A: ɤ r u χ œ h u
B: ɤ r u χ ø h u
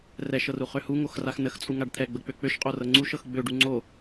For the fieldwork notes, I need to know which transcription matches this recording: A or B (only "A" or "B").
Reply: B